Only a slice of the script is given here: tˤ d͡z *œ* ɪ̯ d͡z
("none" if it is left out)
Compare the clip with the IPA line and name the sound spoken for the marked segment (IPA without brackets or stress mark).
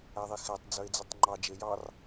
œ